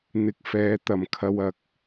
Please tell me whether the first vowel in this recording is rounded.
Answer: no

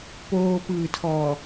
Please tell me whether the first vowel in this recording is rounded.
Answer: yes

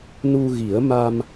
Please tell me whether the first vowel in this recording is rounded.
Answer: yes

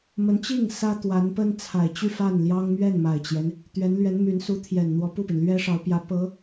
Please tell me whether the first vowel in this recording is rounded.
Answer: no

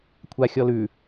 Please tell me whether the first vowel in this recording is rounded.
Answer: no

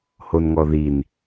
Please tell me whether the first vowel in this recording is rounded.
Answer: yes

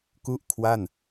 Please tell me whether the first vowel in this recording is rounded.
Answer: yes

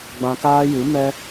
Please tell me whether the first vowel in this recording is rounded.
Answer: no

